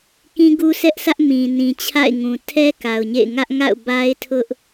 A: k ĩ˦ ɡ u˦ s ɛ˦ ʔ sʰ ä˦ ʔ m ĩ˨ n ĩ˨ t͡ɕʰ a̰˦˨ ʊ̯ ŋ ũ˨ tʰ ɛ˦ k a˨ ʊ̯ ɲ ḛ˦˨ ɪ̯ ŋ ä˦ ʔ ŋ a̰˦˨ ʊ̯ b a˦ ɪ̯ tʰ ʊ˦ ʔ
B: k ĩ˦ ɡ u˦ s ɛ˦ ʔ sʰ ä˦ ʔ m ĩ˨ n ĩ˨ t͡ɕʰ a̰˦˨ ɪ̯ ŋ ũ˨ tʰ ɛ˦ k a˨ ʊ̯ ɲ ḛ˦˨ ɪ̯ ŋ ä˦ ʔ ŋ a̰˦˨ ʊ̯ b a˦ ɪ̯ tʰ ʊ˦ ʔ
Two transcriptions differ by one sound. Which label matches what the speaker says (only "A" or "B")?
B